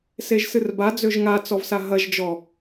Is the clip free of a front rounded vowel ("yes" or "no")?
no